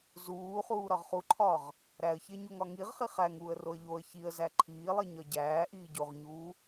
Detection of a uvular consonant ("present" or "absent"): present